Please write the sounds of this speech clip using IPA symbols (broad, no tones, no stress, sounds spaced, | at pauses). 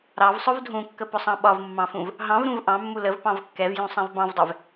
ɾ ɑ v sˤ ʊ v dʱ ũ kː ə p ʊ sˤ ɑ̃ ɓ ɒ v mː ɑ̃ f ũ v | ɦ ɑ̃ v ɾ ũ v ʔ ɑ̃ mː u l ə v p ɑ̃ v kː ɛ v j ũ sˤ ɛ̃ v b ɑ̃ v dˤ ɛ v